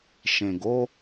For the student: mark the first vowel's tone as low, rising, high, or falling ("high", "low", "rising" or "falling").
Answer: low